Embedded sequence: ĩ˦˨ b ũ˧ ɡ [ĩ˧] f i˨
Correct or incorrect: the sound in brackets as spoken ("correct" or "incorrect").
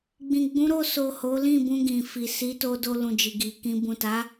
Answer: incorrect